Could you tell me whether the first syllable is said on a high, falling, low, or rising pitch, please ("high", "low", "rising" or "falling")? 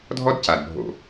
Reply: high